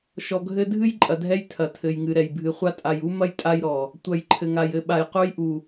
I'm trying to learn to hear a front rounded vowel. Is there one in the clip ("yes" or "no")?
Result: no